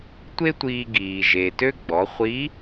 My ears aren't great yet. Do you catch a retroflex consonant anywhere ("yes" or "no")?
no